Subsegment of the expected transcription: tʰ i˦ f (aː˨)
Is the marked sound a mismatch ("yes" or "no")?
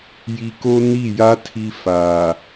no